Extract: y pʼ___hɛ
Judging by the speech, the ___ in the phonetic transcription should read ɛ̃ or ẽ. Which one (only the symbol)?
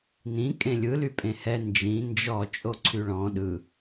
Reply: ẽ